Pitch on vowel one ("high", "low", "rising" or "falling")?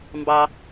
low